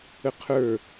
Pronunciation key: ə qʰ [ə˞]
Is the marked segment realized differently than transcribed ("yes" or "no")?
no